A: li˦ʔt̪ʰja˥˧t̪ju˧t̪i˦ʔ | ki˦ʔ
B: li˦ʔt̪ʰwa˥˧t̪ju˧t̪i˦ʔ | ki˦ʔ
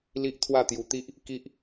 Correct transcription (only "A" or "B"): B